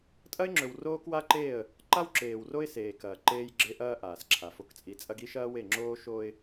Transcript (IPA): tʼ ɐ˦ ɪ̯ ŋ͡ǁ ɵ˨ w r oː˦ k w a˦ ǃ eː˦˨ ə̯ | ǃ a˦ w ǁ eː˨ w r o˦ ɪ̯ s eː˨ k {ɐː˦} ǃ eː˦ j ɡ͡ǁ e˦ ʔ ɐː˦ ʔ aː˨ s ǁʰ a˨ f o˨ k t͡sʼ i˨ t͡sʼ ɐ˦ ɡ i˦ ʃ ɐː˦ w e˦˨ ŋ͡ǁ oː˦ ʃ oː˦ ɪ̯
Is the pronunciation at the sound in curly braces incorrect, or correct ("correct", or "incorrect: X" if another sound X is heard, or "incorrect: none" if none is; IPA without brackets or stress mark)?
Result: incorrect: ɐː˨